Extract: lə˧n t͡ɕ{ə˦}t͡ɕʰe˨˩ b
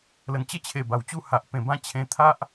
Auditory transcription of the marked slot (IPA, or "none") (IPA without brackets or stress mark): ə˥˧